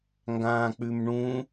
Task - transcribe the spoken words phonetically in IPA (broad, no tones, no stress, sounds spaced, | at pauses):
ŋ ɡ ãː k͡p ʉ m ɳ ũː